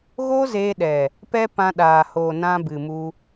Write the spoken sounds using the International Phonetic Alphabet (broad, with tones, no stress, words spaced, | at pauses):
ɣoː˦zeː˧ɗɛ˨ | pɛ˦ pã˧ɗaː˨hoː˨ nã˧bɨ˨mu˧